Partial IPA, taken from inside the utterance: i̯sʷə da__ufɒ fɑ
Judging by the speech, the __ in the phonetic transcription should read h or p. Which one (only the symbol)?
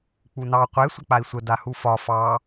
h